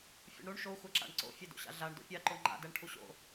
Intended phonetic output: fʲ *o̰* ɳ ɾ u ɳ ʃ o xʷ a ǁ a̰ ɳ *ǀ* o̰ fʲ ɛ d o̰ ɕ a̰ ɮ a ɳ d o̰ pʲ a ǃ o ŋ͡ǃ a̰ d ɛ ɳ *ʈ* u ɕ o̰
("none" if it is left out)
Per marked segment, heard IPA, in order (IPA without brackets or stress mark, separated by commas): ṵ, ǀ, ʈʰ